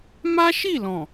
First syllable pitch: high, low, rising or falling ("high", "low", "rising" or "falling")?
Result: high